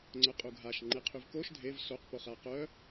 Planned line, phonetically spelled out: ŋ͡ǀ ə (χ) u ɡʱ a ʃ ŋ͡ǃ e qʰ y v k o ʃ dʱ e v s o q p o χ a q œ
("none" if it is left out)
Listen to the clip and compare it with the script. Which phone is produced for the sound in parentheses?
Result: qʼ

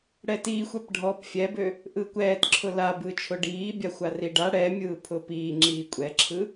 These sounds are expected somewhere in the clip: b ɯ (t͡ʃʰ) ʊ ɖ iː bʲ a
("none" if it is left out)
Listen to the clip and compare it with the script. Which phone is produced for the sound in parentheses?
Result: t͡ʃʰ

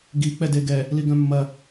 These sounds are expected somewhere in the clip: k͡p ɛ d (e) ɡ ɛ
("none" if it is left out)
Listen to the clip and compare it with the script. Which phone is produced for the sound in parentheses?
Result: e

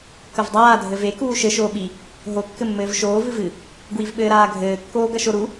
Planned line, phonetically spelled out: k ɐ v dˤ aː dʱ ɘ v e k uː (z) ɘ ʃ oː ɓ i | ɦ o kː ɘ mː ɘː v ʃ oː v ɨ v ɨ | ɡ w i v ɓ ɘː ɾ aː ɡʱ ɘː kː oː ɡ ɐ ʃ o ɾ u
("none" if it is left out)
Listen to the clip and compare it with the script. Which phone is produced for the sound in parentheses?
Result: ʃ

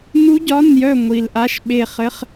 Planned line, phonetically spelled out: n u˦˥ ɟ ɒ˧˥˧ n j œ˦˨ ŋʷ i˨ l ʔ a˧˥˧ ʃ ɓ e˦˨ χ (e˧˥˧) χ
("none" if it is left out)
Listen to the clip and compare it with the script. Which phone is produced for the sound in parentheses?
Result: ɘ˧˥˧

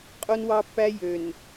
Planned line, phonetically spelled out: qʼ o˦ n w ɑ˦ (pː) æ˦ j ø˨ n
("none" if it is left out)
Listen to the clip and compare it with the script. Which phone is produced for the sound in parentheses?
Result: pː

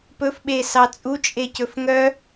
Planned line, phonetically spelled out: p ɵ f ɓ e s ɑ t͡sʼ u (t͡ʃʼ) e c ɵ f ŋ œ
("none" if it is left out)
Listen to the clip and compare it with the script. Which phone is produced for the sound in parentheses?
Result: t͡ʃʼ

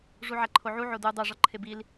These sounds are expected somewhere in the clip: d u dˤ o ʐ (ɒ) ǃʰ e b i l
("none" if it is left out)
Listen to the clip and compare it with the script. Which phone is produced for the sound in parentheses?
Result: ɒ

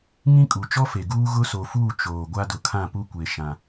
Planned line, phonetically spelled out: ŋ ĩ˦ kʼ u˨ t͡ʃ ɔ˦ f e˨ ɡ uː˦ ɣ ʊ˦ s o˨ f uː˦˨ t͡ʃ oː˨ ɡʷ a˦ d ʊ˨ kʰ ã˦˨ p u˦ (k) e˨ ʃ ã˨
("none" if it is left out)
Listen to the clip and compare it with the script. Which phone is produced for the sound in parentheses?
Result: kʷ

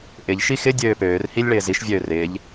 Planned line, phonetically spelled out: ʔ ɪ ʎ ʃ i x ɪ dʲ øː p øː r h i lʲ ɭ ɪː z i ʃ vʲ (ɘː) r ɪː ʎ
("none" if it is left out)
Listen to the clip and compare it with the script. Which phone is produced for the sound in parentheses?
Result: øː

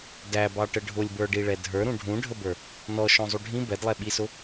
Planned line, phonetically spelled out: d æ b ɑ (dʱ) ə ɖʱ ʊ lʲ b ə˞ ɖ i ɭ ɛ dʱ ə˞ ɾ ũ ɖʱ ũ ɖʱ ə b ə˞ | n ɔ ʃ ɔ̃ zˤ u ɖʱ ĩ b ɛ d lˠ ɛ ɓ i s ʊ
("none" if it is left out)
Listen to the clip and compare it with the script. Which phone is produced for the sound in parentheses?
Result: ʈ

